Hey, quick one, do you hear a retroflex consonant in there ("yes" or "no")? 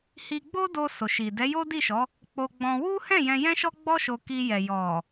no